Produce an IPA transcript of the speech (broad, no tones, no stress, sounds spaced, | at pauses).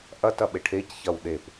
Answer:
ʔ ɐ t ɐ ɓ e ʈʰ e c ç ɐ w ɗ e p